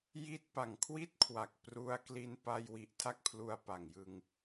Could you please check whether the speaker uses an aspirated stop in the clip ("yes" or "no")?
yes